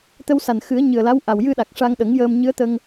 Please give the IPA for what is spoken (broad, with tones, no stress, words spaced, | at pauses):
t̪ə˧wsa˨˩nxɨ˨˩˦ə̯ ɲɨ˨˩ə̯la˧˥w ʔa˨˩wjɨ˧ɗa˨˩k̚ ʂa˧ŋɗə˨˩˦ŋjəː˧m ɲɨ˧˥ə̯t̪ə˧ŋ